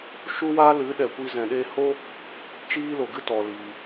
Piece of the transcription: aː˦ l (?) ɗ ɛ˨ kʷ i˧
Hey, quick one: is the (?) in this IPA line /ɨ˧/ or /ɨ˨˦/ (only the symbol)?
ɨ˨˦